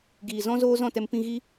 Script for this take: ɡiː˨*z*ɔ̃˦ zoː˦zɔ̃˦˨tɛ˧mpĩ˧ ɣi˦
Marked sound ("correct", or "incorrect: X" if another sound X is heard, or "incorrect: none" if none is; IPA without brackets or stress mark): correct